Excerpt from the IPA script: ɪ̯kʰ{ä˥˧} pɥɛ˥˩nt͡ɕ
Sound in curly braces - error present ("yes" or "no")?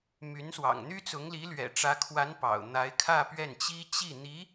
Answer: no